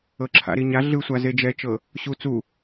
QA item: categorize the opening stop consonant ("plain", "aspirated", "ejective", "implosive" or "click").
click